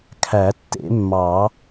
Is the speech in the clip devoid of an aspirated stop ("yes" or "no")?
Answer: no